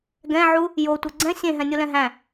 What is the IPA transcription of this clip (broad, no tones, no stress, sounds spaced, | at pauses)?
ɡ ɛ̃ ʕ u | j o tʷ ɛ ɡ͡ǀ ɛ̃ sʲ ẽ ɦ ɛ̃ nʲ o l ɛ̃ ɦ æ̃